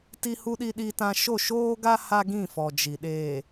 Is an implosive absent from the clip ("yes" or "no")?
no